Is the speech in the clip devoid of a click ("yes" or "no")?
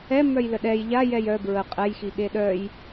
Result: yes